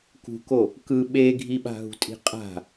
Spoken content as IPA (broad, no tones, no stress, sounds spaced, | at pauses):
k ṳ k o | k ɯ ɓ e ɡʱ i ɓ a̤ ɦ ṳ tʼ i̤ qʼ a̤